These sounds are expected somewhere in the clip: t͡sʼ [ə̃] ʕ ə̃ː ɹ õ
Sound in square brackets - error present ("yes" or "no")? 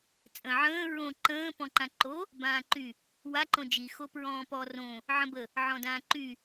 no